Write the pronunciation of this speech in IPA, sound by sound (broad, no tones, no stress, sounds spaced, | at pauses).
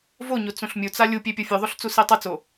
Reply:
v o ɲ o t͡s ũ ɬ mʲ u t͡s a lʲ u pʲ e pʲ o fʲ ʉ ðˤ o ɬ t͡s u s i tˤ ɨ t͡s o